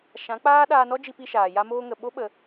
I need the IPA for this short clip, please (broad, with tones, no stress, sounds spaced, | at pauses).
ʃ ã˨˦ k͡p aː˦ ɗ aː˧ n ɔ˦ d͡ʒ i˧ p i˧ ʃ aː˨ j a˧ m oː˧ ŋ ə˨ ɓ o˦ ɓ ə˧